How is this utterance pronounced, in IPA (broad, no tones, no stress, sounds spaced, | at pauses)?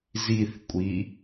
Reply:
z i θ kʷʼ i